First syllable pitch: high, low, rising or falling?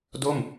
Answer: falling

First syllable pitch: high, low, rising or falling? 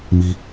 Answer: high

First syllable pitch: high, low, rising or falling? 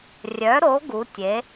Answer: rising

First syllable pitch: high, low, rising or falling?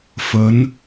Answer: rising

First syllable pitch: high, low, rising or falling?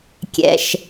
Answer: low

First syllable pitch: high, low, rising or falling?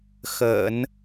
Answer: low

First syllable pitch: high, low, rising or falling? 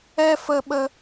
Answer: high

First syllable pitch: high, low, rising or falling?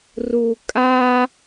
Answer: low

